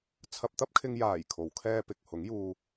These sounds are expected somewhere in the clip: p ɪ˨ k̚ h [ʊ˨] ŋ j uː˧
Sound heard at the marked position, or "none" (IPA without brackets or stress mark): ʊ˨˥